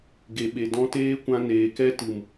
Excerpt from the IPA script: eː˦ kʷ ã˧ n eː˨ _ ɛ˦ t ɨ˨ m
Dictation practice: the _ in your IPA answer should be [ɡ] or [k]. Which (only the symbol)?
k